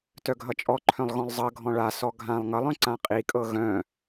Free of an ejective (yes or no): no